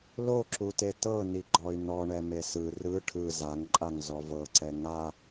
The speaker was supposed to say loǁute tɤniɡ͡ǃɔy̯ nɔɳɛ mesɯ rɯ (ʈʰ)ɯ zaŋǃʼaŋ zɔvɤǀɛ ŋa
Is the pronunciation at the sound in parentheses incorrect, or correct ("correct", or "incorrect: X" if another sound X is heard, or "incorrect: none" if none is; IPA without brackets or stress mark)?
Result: correct